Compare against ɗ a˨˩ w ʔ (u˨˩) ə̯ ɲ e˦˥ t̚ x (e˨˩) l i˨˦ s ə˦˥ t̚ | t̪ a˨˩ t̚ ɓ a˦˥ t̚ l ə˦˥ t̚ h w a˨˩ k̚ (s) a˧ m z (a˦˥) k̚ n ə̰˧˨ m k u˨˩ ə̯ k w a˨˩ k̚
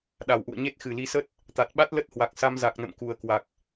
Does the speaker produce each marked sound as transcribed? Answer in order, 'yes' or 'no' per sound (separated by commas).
no, no, yes, no